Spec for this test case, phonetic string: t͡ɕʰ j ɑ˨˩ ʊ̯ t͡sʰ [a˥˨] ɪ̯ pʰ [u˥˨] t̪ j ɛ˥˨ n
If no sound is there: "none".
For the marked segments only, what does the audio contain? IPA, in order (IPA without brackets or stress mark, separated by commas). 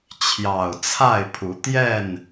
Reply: a˥˨, u˨˦